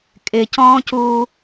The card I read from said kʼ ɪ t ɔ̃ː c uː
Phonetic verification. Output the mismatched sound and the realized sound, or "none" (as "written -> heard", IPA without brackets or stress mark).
t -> c